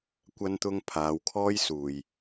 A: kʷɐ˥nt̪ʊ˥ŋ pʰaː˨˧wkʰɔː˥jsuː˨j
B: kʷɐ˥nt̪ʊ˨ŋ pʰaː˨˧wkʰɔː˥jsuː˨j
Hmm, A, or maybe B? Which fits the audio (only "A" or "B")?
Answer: A